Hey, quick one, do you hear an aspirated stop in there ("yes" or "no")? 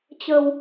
no